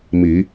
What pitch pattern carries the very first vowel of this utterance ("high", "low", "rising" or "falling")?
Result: rising